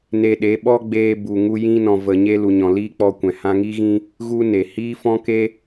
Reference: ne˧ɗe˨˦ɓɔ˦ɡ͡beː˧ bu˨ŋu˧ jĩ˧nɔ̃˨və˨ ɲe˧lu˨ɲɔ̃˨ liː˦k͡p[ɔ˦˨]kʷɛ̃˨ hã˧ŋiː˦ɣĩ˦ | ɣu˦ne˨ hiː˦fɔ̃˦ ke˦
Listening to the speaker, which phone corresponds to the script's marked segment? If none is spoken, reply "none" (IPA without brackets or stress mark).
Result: ɔ˧